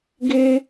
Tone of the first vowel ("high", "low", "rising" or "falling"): high